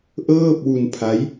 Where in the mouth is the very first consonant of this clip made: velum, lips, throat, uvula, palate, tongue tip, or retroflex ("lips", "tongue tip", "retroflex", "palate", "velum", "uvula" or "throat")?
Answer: throat